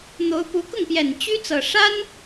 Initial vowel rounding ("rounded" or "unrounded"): rounded